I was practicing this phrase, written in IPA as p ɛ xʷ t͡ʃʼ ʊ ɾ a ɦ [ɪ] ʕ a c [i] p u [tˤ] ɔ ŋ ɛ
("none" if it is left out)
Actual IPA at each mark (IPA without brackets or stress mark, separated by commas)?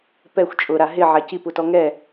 ɪ, i, t